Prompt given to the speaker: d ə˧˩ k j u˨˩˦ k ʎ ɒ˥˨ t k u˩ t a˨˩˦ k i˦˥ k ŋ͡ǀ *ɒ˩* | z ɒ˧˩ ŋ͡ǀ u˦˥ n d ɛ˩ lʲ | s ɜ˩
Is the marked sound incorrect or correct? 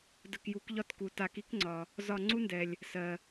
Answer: correct